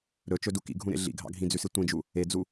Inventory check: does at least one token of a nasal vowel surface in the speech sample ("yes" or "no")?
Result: yes